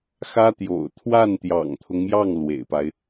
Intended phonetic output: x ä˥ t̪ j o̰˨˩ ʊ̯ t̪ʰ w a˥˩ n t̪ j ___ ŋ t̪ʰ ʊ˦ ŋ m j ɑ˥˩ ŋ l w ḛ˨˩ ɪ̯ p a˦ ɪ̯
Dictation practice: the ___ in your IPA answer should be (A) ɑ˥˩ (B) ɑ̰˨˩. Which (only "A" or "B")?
B